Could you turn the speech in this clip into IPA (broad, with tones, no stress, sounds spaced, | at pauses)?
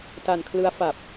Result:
t a˧ n kʰ l ɯ˦˥ a̯ f a˨˩ p̚